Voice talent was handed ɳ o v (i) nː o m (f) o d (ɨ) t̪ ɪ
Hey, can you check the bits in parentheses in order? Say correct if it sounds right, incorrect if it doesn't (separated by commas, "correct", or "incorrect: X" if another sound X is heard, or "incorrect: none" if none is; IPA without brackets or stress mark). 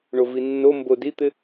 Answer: correct, incorrect: b, incorrect: i